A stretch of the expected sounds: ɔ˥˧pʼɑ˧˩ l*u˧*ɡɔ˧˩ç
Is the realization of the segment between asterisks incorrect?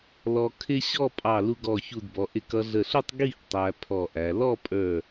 no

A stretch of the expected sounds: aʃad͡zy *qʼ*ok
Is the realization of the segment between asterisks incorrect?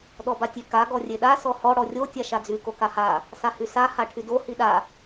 yes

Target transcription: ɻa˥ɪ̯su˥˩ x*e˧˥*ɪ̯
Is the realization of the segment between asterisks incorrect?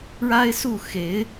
no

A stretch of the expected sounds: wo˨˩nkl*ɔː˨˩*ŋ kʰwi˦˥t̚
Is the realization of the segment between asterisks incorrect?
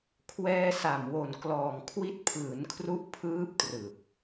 no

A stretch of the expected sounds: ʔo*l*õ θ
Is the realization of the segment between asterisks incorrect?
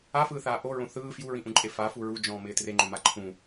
yes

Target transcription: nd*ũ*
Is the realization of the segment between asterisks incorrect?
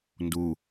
yes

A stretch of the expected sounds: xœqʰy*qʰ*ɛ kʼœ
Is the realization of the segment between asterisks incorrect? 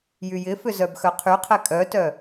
no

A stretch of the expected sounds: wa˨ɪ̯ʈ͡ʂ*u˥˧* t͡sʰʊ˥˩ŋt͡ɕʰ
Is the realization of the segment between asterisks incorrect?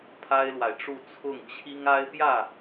no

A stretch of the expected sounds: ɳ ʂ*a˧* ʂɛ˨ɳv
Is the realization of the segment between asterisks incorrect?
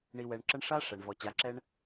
yes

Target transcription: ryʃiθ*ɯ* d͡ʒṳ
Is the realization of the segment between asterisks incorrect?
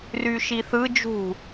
no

